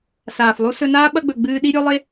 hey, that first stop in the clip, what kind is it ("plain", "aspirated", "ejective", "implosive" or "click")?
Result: implosive